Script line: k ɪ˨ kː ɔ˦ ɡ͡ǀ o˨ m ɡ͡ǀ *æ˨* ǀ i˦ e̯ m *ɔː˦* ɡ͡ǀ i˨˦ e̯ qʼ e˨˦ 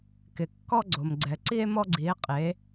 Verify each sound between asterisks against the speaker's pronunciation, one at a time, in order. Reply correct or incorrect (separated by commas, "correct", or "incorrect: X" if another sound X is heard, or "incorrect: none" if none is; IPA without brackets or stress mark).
incorrect: ɛ˨, incorrect: ɔ˦